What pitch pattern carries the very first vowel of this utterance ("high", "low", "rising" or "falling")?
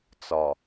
low